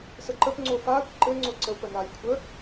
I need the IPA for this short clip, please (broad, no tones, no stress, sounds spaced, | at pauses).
s ə ǃ ə p ŋ͡ǀ o f aː kʷ ǃ ɘ ŋ͡ǀ o ǀ ə w p ə n a lʲ kʷʰ ə